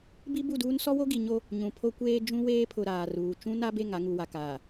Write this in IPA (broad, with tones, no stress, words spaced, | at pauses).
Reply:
bi˦bu˦˨duː˦n sɔ˦wo˦ɡi˨ɲo˦ | ɲũ˨pʰo˦kʷeː˦ d͡ʒũ˦weː˦pʰʊ˨ ɾaː˨ruː˨ t͡ʃũ˦na˦be˦˨ŋ a˦ŋu˨wa˨kaː˨